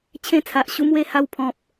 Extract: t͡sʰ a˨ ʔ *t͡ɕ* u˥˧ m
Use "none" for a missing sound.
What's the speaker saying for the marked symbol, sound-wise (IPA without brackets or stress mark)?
ɕ